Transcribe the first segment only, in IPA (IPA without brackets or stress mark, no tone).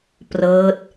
p